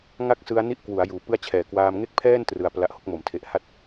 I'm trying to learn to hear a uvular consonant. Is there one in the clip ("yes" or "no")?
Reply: no